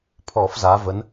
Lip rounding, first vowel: rounded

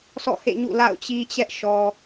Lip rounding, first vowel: rounded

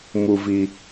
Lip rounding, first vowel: rounded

